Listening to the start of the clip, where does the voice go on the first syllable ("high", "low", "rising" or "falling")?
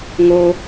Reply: high